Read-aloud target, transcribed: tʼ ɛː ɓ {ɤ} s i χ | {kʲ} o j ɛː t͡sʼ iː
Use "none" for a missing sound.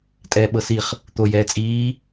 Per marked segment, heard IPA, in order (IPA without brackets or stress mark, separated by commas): ɤ, t̪